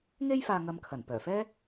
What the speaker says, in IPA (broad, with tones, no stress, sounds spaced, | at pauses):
ŋ e˥ j f aː˧ ŋ ɐ˧ m kʰ ɐ˨˩ n p œː˨˩ f ɛː˥